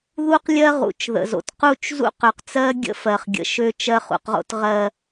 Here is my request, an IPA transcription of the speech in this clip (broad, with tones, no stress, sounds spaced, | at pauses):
ð u˦ q lʲ ɜ˦ ʁ ṵ˨ t͡ʃ ð ə̰˨ z o̰˨ t q u˦˨ t͡ʃ z ṵ˦ q ø˨ q t͡s ɜ˦ ɡʲ ə̰˦ f ɜ˨ χ ɡʲ ə̰˨ ʃ ø˦ t͡ʃ ɜ˦ χ ṵ˨ q ʁ o̰˦ t ʁ ɜ˨